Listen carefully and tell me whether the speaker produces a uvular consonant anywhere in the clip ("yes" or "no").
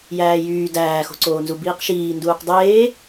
yes